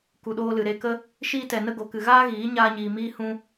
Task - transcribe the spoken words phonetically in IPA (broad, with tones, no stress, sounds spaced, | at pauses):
k u˨ ɗ oː˧ l ɨ˨ ɾ e˧ k ə˦ | ʃ iː˦ t ɛ˧ n ə˦ ɡ o˧ k ɨ˧ ɣ aː˦ ɣ iː˨˦ ɲ aː˦ ɲ iː˧ m iː˦ h ũ˦